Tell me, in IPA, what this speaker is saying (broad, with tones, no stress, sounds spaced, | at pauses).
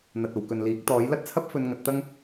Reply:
n̪ ɐ˨ t̚ o˨ w k ɵ˨ n l iː˨˥ k̚ t̪ ɔː˨˥ j l ɐ˥ t̚ t͡sʰ ɐ˥ p̚ f ɵ˧ n ŋ ɐ˨˥ t̚ t̪ ɐ˥ ŋ